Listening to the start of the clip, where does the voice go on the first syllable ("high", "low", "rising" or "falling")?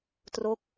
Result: falling